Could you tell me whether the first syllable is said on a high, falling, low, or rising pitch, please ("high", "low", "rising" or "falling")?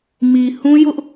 low